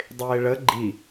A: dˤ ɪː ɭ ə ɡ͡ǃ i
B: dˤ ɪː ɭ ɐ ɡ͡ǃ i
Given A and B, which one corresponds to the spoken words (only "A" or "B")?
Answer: A